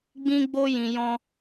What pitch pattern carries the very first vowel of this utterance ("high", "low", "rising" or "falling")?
high